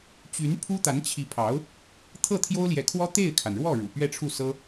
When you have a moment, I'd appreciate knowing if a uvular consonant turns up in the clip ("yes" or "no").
no